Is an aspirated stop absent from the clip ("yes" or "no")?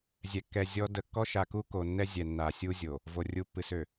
yes